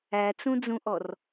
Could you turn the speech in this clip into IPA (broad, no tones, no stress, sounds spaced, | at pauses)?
æ t͡s ũ d͡z ũ ʔ ɔ r